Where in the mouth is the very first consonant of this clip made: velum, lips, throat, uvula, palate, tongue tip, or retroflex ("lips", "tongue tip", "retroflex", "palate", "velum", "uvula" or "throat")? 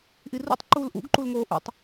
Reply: throat